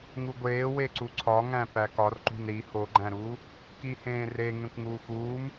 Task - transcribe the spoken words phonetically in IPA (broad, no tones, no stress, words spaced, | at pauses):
ŋuɡʷeːwe ǀuǀʰɒŋæ̃ pækɒrǃṳn ɾi hoɡ͡ǃæ̃ɾuː | kihẽːre ŋẽkʷŋuːxuːm